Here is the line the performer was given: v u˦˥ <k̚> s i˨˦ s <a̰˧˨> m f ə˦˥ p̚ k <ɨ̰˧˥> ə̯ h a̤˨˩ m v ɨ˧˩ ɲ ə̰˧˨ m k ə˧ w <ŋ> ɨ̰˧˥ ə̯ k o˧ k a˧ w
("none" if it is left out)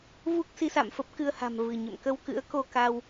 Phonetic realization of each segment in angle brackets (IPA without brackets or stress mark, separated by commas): k̚, a̰˧˨, ɨ˧, k